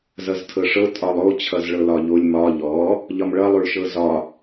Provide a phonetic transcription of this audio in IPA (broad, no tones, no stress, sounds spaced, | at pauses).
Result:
z ʌ z tʰ ɤ ʂ ɤ tʼ ɒ lˠ o t͡ɕʰ ʌ z ɭ ɤ l ɒ ʎ o lʲ m ɒ ʎ ɔ | ʎ ɒ m ɭ ʌ lˠ o ɭ ʃ ɤ z ɒ